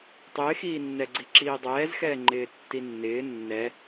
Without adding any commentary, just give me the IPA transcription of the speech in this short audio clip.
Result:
tˤ ɪː x iː nː ɛ ɡ͡ǀ i ǁ iː dˤ ɛː z x ɛː ŋ͡ǃ ɪː tː i nː ɪː nː ɛ

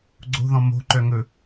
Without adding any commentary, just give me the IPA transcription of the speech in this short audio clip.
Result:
ɡ͡ǀ o̤ ð ɔ̃ m o̤ ǃ œ ŋ ɵ

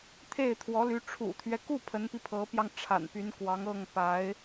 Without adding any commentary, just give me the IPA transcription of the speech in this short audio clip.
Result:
t̪ʰ e˥˩ ɪ̯ t̪ʰ w ɔ˧˥ l y˧˥ ʈ͡ʂʰ ṵ˨˩ t̪ʰ ɥ ɛ˦ k u˥˩ pʰ ə˧˥ n p i˧ pʰ ɤ˧˥ p j ɑ˧ ŋ ʈ͡ʂʰ a̰˨˩ n p y˧˥ n k w ɑ˧˥ ŋ ɤ˥˩ ŋ p a˧˥ ɪ̯

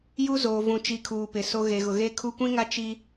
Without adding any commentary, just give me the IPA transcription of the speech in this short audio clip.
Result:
j u˦ z oː˨ v ũ˨ t͡ʃ i˨ kʰ uː˨ p ɪ˨ s o˦ ɣ e˨ ɣ ʊ˨ ɣ eː˦ kʰ u˦ kʷ ĩ˦ ŋ a˦ t͡ʃ i˦

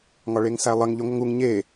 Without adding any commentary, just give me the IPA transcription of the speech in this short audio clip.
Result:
ŋ ɒ ɭ e ŋ s æ lˠ ə ŋ ʎ y ŋʷ ə ŋ u ŋ ɲ e

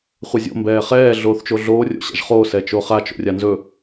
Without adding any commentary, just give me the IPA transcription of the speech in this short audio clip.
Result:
χʷ ɛ zʲ o̰ m b ɛː χ ɛː ɮ oː θ t͡ʃ o ɮ oː rʲ o̰ ɕ a̰ ʒ χ oː s ɛ t͡ʃ o χ a t͡ʃ o̰ rʲ a n z ɵ

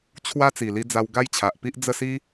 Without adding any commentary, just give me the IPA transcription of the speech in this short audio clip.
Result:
t͡ɕʰ w a˦ t͡s i˨˩ l i˧ d͡z a˧ w ɡ a˦ j t͡ɕʰ a˨ ʔ p i˦ ʔ d͡z ə˥˧ s i˦

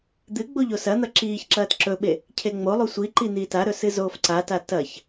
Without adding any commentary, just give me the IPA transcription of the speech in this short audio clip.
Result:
d̪ ɨ ɡ͡b o ʎ o s ɐ n̪ ɐ ǁ iː ç ǁ ɐː t ǁ ɵ ɓ e | cʰ e ŋ͡m o lˠ u sʷ i ǃ i n̪ iː t a ɾ ɵ s ɨ z oː f ǀ a t a t ɐ ç

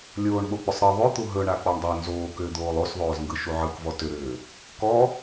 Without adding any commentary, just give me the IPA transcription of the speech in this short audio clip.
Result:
lʲ oː ɳ ɓ o k͡p ʏ sˤ ɾ ɯ ðˤ ʏ t̪ u ɦ ɵ ɳ a k͡p ɔ ɳ dˤ o n z oː k ʏː d̪ oː lˠ o s ðˤ oː z ŋ ɡ ɯ ʃ u ʕ ɯ k v ɔ t ʏ ɾ ʏː | k ɔ

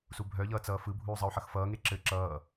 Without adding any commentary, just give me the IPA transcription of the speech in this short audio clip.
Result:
s u bʱ œ ʎ ʌː t͡s ʌː f ɯ bʱ uː zˤ ʌ u̯ ħ ʌ x f ʌː ŋ e ǁ ɘ ǁ ʌː

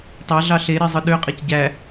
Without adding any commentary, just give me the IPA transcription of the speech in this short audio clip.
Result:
tˤ æ ɮ ɑ ɬ e ɾ e zˤ ɯ ɗ ø qʼ e c ɟ æ

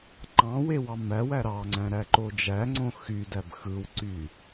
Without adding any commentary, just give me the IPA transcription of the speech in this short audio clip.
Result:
ǃ ɑ̃ w e w ɑ m æ w æ ɾ ɑ ŋ͡ǀ æ̃ ɾ æ ǃ o d͡ʒ æ ŋ͡ǀ õ x y d æ b x ɯ w ǀ y

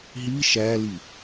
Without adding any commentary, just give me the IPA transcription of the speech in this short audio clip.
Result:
ɦ i ʃ æ l i

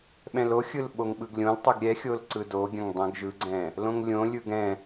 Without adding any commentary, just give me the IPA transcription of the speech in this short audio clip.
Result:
ɓ ɛ̃ l o xʲ ɯ l ɓ o ŋ ɓ ɯ ɡ lʲ õ l tˤ ɯ ɡ ɾʲ ɛ xʲ o l ǀ ɯ d o ɡʲ ə̃ ŋ dˤ ɛ̃ ɡ ʒ ɯ ɡ͡ǀ ɛ̃ | l õ ŋ lʲ õ lʲ ɯ ɡ ɛ̃

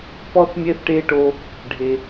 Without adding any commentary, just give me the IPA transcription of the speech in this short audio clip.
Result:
p ɔ˦ θ mʲ ɛ˦ θ ʈ e˦ ʈ o˦ | ɖʱ e˦

